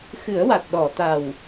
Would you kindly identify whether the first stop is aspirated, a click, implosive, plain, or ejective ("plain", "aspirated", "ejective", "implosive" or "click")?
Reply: plain